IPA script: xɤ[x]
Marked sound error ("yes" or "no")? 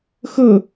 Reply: yes